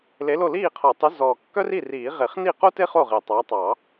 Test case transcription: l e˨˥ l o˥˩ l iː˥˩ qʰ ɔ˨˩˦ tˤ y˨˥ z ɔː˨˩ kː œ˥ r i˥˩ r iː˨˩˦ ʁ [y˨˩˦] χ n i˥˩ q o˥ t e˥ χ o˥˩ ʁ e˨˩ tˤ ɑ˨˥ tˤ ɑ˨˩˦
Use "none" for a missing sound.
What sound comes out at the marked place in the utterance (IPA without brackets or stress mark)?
e˨˩˦